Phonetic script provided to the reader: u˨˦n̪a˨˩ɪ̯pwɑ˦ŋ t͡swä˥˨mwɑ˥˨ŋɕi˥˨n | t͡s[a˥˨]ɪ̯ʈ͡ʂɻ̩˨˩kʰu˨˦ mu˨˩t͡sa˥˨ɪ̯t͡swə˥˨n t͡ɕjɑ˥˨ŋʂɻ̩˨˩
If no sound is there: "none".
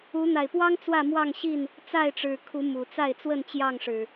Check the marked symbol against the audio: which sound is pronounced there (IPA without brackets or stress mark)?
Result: a˥˨